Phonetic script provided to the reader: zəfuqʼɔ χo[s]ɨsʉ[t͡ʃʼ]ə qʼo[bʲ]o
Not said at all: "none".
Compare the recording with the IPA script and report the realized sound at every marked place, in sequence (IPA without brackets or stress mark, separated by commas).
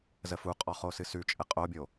s, t͡ʃʼ, bʲ